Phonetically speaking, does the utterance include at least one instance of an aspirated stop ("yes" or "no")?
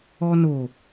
no